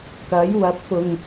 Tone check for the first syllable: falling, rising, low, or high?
rising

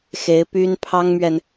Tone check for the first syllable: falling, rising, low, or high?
rising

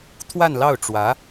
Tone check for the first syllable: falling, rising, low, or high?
falling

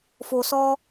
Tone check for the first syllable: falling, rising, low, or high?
low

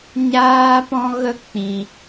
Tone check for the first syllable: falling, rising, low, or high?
high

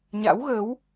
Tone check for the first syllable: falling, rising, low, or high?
rising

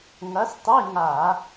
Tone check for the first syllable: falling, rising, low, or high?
rising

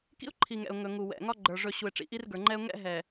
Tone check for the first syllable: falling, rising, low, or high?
high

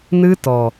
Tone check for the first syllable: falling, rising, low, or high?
high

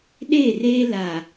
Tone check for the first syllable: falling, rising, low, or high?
falling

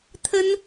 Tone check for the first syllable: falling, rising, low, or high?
high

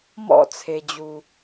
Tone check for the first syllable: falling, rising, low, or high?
falling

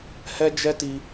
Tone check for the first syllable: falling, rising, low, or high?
high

